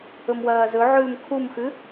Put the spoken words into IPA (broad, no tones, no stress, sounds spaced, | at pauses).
ɵ m w ɐː z ɵ ʕ ʉː m kʰ u m x ʉ